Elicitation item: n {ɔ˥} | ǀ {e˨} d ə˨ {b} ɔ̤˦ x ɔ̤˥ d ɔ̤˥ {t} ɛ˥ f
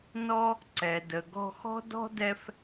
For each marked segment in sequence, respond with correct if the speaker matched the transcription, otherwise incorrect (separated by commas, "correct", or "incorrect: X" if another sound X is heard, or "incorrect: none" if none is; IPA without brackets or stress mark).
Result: incorrect: ɔ˦, incorrect: ɛ˨, incorrect: ɡ, incorrect: d